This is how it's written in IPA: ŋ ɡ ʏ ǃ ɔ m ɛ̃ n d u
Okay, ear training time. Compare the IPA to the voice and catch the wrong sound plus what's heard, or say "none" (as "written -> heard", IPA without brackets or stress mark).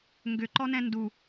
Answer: m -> n